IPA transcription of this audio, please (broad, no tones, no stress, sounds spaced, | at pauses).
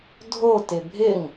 dʱ o t ɪ bʱ ɪ ŋ